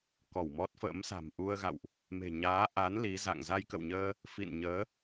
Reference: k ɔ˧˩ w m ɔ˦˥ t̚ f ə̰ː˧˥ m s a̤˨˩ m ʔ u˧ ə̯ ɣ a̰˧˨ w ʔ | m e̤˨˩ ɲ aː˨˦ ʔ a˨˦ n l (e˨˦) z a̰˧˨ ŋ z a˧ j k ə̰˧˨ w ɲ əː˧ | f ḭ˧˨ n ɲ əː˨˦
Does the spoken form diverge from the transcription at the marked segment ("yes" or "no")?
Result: yes